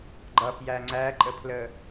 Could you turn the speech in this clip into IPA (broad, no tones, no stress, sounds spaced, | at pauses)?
ɡ͡ǃ ʌ f j æ ŋ͡ǀ æ ǃʼ ə pʰ l ə